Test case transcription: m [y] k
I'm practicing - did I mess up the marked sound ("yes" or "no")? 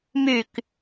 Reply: no